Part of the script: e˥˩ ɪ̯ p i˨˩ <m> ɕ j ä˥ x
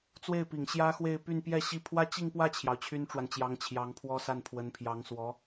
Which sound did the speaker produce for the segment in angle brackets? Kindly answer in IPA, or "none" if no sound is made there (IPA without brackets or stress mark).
ŋ